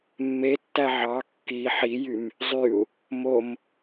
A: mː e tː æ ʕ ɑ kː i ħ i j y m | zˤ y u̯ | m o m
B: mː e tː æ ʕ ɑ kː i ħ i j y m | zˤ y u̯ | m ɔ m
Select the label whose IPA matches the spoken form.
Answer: A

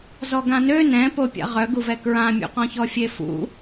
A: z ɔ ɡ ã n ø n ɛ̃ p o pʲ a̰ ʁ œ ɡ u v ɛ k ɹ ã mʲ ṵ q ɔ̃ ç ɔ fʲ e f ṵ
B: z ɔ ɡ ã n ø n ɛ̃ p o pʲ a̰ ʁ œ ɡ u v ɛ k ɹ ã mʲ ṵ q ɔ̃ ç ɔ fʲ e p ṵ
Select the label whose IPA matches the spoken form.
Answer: A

